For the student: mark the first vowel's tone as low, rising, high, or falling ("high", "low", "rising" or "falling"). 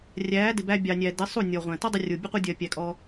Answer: rising